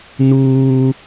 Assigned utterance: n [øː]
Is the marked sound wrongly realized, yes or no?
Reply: yes